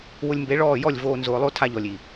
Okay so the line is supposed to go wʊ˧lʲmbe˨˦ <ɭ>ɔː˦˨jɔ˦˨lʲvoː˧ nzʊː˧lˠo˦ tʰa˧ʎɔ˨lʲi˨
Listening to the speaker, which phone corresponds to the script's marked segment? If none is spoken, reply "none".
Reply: ɭ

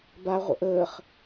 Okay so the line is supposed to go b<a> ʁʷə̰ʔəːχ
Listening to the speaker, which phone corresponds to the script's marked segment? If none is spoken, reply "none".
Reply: a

